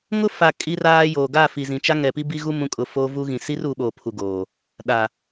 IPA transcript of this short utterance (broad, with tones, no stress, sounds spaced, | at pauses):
ŋ ʊ˦ f a˨ kʼ i˦ r aː˦ j oː˨ ɡ aː˦˨ f i˨ z ĩ˨ t͡ʃ a˦ ŋ ɛ˨ p i˦ b i˦ ɣ u˦ m ũ˨˦ kʼ ʊ˨ f o˦ v u˦ ɣ ĩ˨ s i˦ r u˨˦ ɓ oː˨ pʰ u˨ ɡ oː˨ | ɗ a˨